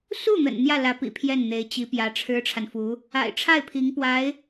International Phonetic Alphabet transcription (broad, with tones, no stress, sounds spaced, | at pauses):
s u˥˩ n̪ ə̰˨˩ n n̪ j ä˥˩ l ä˧˥ p ḭ˨˩ pʰ j ɛ˥˩ n n̪ e˧˥ ɪ̯ t͡ɕ i˧˥ p j ä˧˥ ʈ͡ʂʰ ɻ̩˥ ʈ͡ʂʰ a˨ n f u˧˥ | a̰˨˩ ɪ̯ ʈ͡ʂʰ a˥˩ ɪ̯ pʰ i˧˥ ŋ p w a˧˥ ɪ̯